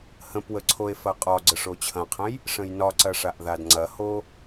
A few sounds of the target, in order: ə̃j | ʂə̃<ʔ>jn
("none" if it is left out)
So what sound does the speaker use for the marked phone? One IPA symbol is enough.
none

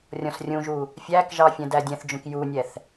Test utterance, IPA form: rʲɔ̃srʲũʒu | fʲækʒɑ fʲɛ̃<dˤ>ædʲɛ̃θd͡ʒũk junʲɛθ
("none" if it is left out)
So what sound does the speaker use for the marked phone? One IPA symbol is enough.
d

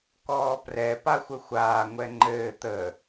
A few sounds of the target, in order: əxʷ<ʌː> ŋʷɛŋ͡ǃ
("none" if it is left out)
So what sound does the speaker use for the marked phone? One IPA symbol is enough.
aː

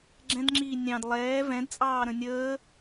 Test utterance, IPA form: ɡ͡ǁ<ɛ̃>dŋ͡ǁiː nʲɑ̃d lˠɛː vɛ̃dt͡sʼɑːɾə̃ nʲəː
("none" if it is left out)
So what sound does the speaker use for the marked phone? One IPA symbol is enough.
ɛ̃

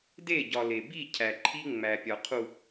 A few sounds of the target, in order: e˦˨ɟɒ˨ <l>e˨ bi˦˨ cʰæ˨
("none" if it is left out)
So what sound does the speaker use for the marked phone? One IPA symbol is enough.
l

